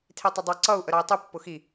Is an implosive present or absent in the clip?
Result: absent